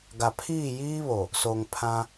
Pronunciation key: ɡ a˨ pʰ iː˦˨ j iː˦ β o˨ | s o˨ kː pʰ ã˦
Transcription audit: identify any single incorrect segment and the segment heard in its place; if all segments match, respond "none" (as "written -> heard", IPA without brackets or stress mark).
kː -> ŋ